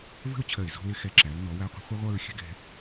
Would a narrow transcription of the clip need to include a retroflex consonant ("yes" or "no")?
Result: no